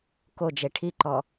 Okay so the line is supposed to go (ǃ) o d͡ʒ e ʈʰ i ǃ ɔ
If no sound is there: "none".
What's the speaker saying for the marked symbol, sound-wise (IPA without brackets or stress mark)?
k